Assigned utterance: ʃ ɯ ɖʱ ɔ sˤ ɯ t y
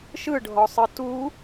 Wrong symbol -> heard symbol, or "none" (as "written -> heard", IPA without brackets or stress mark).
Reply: y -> u